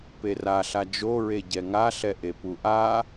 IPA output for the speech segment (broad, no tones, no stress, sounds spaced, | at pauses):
p e r a ɬ a d͡ʒ o ɹ e ɟ ɛ ŋ a ɬ ɛ ʔ e p u ʔ a